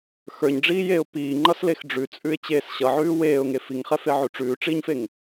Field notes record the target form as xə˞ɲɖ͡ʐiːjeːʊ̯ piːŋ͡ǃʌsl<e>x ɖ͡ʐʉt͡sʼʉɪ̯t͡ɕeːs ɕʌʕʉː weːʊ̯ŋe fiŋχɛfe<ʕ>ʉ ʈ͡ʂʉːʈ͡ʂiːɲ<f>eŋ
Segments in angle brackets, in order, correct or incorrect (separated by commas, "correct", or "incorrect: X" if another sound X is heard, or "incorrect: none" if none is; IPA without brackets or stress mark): correct, correct, correct